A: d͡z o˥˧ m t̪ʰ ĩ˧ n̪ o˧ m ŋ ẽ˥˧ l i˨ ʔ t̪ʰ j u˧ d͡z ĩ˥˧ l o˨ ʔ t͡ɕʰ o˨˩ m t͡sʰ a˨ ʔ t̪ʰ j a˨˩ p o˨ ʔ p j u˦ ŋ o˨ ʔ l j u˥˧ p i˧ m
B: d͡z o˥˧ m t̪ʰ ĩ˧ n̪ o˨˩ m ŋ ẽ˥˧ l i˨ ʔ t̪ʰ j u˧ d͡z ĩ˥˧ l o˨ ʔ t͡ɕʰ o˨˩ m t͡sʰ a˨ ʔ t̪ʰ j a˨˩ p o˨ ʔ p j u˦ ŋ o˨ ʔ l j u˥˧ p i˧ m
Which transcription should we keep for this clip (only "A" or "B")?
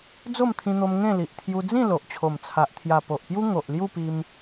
A